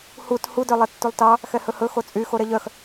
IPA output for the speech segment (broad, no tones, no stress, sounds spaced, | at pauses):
h u t h u d œ lˠ ɛ tː u lˠ t ɑ | x ɛ h ɵ h ɵ x o t͡sʼ y x o ɾ ɛ ʎ œ x